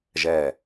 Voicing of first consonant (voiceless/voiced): voiced